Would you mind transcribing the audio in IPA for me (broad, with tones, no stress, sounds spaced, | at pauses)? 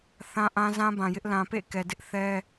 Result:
θ ã˦ ʔ ã˦ z ã˦ b ã˨ j ɪ˦ ʔ l ã˨ p ḛ˦˨ k ɛ˨ d ɪ˦ ʔ θ ɛ˦